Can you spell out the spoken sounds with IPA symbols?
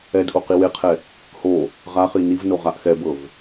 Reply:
ɛ d ʔ o q i w e qʰ ɛ | h o | ʁ a χ i n i v n o ʁ a ʔ x ɛ b ɤ v

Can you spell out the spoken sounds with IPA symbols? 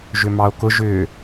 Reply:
ʒ ʏ m ɑ o̯ k ʊ ʒ ʏː

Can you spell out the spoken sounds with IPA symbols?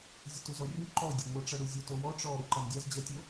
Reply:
zʲ ə t u z ɔ rʲ u ǃ ɔ dʲ o ŋʷ ə ʈ͡ʂ ʌ ɽ u zʲ ɔ t o w ɔ ʈ͡ʂ ɔ ɾ u ǃ a n dʲ a z d͡ʑ ʌ tʲ o

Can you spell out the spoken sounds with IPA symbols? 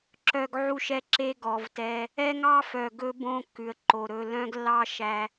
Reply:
ǁ œ˨ ɡ ʕ u˦˨ ʃ ɛ˦ ǁ e˦ ɡ ɔ˨ v t ɛ˦ | ɛ˦ ŋ ɑ˦ f œ˨ ɡ ɵ˦ b õ˦ kː ʉ˨ ə̯ ǃ o˨ ɾ ɵ˨ l œ̃˦ ɡ lː ɑ˦ ʃ æ˦

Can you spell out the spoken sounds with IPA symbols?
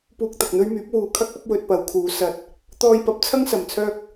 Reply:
p uː˧ k̚ t̪ ɐ˨ k̚ n̪ ɵ˥ ɥ m yː˨˥ p̚ w uː˨˧ kʰ ɐ˥ k̚ ɐ˨˥ p̚ w ɵ˧ t̚ p ɐ˨˧ w kʰ uː˨˧ s ɐ˧ t̚ | t̪ ɔː˧ j p ɐ˨˥ p̚ t͡sʰ ɐ˥ ŋ s ɐ˨ m t͡sʰ œː˥ k̚

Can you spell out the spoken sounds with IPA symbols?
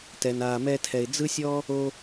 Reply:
t ɛ˩ n aː˩ m ɛ˧ tʰ ɛ˩ ɪ̯ d͡z ɯ˥ sʲ ɔ˥ | o˧

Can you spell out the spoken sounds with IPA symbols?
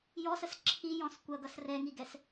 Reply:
j ɔ s ə s ǁʰ i j ɔ̃ s kʷ ʌ ɡ ʌ s r ɛ ŋ i ɡ ɛ s

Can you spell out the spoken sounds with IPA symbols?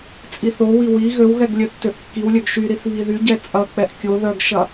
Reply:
t͡sʼ i θ o w i w i ɣ ø w ɣ ɛ ɡ lʲ œ tː ø ʔ kː i w lʲ œ ɡ ʃ y ɾ i θ β i ð y ɟ ɛ t͡sʼ ɐ k͡p ɛ ʔ kʲ o ð œ ɡ ʃ ɐ

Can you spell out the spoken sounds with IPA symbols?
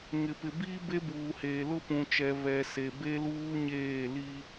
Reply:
ŋ ɪ˨ p ɪ˨ b iː˦ b e˦ b uː˨ h eː˨ l ʊ˦ p ũ˨ t͡ʃ ɛ˨ β ɛ˨ s e˨ b e˦ l uː˦ ɲ eː˦˨ l i˦

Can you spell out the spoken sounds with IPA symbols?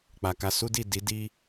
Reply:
k͡p a˨ k a˧ s u˦ d i˦˨ d i˨˦ d i˦

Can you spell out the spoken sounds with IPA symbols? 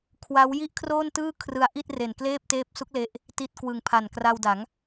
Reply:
kʰ w a˦˥ w j i˥˩ ʔ kʰ r oː˥˩ n t ɯː˥˩ kʰ r ɯ˧ a̯ ʔ i˥˩ t̚ r e˨˩ n k l eː˥˩ p̚ t eː˦˥ p̚ s u˦˥ k̚ l e˥˩ ʔ | t i˦˥ t̚ k w ɯ˨˩ ŋ pʰ a˨˩ n k r a˧ w d a˩˦ ŋ

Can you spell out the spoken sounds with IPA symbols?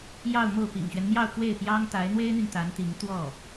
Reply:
j ɑ˥˧ ʊ̯ m o˥˩ ʊ̯ p ḭ˨˩ ŋ ɕ ɥ ɛ˦ n m j ɑ˥˧ ʊ̯ k w e˥˩ ɪ̯ p j ɑ˥ ŋ t̪ a˧˥ ɪ̯ n̪ w e˥ ɪ̯ n̪ y˨ n t̪ a˧˥ n t̪ i˧˥ ŋ t̪ w ɔ˥˩

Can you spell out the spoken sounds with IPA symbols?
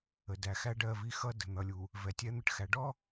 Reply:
ə˨ d æ˨ x æ˦ ɖ ɜ˦˨ v i˦ x ʌ˦ d ə̤˨ n̪ ʌ˨ lʲ u˨ | v ɛ˨ tʲ ɛ˦ n̪ ə˦ ʈ x æ˨ ɖ ɔ˦

